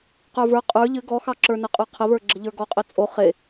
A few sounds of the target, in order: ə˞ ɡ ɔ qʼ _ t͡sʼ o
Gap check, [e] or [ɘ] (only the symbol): ɘ